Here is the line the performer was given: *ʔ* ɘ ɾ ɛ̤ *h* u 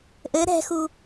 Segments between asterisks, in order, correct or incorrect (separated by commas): correct, incorrect